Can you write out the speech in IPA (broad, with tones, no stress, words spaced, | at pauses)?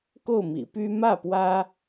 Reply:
ko˥˩ʊ̯mḭ˨˩py˥ mä˥˩pwä˥